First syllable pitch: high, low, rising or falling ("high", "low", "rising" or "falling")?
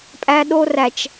high